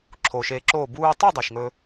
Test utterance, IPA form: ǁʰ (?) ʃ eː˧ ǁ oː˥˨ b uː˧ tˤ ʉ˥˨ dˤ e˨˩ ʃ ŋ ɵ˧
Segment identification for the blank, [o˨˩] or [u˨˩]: o˨˩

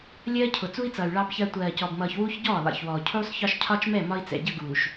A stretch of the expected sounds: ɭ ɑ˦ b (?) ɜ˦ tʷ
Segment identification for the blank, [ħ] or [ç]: ç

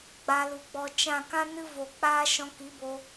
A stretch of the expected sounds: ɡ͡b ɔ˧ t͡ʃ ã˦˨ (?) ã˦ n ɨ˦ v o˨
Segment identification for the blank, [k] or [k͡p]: k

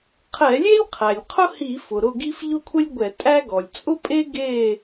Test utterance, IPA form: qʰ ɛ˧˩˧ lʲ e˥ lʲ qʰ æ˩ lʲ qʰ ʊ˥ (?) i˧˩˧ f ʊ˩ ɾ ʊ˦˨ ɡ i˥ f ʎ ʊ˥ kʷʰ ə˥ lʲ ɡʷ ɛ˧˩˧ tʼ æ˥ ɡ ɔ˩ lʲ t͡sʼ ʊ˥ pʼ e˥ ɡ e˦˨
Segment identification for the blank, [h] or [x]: h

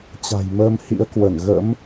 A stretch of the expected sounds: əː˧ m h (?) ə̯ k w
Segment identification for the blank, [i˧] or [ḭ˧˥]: ḭ˧˥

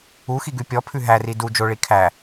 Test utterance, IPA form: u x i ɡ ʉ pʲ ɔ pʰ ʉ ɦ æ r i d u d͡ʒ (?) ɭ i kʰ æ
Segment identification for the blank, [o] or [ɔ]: o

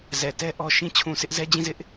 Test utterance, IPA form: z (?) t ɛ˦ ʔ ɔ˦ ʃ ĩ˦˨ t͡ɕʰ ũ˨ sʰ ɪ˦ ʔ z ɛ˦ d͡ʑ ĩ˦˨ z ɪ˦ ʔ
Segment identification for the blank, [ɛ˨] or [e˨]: ɛ˨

